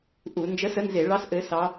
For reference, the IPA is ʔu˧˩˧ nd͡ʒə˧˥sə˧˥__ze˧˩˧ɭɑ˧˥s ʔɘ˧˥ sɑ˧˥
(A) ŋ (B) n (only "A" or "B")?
B